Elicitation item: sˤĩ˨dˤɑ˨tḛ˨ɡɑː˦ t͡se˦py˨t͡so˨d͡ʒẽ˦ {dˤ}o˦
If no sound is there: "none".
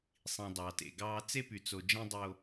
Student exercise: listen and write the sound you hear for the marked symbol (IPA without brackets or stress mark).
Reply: dˤ